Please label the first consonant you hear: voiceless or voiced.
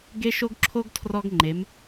voiced